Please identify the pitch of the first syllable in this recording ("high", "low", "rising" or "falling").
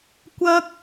high